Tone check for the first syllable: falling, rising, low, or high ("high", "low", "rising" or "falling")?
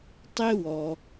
high